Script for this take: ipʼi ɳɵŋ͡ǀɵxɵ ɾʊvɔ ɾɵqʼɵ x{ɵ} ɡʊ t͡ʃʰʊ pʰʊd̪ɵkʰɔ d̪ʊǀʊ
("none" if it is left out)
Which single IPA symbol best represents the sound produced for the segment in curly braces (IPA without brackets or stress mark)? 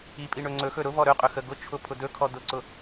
ə